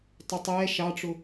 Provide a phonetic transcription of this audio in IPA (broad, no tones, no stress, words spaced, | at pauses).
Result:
tˤʊtˤɛː ʃɑʈ͡ʂʊ